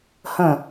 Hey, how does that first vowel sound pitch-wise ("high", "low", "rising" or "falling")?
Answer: falling